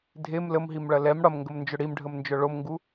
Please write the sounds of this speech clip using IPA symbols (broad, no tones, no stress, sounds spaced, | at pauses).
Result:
dʱ e m l ə m ɦ i m ɭ ɐ l ɛ m ɽ ɐ m ŋ ɡ ə m n d͡ʒ ʏ ɽ i m ɖʱ ə m n d͡ʒ œ ɭ o m ŋ ɡ u